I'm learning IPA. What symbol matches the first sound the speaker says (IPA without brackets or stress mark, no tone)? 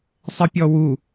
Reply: sˤ